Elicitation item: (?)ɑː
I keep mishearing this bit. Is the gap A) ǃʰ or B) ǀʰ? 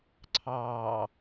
B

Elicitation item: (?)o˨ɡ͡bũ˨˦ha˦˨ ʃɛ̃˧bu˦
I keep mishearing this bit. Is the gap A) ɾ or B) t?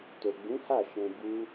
B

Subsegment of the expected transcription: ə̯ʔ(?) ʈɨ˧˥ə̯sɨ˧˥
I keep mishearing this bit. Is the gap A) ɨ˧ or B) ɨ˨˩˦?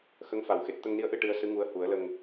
A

